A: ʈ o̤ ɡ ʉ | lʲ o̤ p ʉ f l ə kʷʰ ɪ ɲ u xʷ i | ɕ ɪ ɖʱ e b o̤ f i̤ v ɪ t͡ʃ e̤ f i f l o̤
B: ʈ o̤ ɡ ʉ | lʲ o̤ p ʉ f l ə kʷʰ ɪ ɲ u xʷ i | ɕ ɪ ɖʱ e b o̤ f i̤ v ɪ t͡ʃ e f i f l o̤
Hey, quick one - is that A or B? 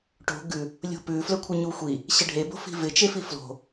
B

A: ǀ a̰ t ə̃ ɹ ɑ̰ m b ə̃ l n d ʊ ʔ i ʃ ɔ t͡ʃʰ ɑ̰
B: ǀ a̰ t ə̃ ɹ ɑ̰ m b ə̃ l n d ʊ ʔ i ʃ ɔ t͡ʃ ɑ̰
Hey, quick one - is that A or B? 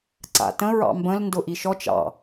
B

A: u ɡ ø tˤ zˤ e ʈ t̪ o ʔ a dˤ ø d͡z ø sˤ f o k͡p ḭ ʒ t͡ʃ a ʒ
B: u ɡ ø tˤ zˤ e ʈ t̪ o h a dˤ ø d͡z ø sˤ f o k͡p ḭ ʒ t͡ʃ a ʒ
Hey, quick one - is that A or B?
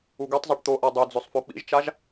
A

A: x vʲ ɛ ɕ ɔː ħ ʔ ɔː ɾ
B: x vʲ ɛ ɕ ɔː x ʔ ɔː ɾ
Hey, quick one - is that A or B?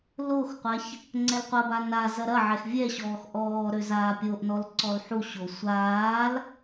B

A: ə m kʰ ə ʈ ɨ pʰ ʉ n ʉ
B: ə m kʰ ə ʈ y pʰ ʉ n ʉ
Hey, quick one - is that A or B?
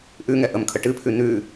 A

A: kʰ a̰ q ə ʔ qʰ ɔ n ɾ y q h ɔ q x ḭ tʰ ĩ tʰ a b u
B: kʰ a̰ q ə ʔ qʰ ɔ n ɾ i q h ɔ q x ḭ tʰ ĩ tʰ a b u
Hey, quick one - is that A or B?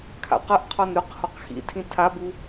A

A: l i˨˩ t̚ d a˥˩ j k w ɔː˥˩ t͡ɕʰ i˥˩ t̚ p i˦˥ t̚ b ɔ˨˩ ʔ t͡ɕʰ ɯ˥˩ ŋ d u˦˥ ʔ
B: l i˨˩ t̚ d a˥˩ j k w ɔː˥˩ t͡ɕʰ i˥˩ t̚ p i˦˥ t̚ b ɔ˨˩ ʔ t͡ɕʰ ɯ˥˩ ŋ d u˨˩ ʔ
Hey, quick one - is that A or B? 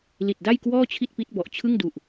B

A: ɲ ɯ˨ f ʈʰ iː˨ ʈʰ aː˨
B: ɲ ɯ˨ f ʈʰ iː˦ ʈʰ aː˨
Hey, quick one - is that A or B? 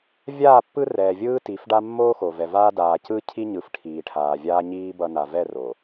A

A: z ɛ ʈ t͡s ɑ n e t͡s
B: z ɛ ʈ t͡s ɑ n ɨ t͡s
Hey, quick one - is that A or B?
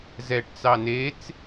A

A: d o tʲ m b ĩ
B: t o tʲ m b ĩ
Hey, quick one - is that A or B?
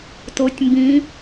B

